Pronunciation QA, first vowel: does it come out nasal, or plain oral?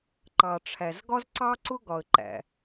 oral